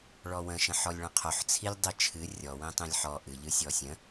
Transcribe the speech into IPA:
ɭ ɔ w ə̃ ʃ ə̃ ħ ɔ lʲ ɭ ə̃ qʰ o ħ t͡sʰ i lʲ dˤ i t͡ʃʰ ɨ rʲ ɔ w ĩ tˤ ĩ lʲ ħ ɔ ʔ ɨ ʎ ɨ sʲ ɔ sʲ ə̃

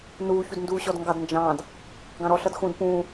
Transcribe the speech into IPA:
n uː ç u d n d uː ɕ ɔ d ŋ ɡ ɑ d n d͡ʒ ɑ̃ː d | ɡ ɑ̃ ɾ ɔ ɬ ʌ d x ũ d p ũː

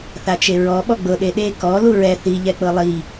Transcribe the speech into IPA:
θ a t͡ʃ e ɹ ɔ ɓ ɔ ɡ͡b ɤ ɗ e ɗ e k ɔ l u ɹ ɛ θ i ʎ ɛ k͡p ɤ lˠ i

